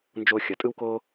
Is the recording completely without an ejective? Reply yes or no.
no